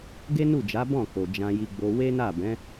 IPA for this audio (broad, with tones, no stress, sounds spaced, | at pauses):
ɡ e˦ n u˦˨ d͡ʒ a˨˦ b ɔ̃˦˨ k o˨ d͡ʒ ã˧ j i˧ ɡ͡b o˧ w e˦ n a˦˨ b ɛ̃˨˦